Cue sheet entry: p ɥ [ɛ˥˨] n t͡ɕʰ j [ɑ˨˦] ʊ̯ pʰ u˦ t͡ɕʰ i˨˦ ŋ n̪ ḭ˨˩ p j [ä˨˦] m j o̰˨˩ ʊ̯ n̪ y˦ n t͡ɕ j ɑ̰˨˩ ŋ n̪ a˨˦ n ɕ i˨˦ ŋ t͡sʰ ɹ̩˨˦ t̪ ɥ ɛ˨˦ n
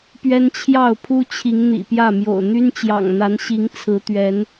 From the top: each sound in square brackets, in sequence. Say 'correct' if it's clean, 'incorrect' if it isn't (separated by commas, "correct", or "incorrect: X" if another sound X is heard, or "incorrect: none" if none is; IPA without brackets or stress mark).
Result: incorrect: ɛ˦, incorrect: ɑ˥˨, incorrect: ä˥˨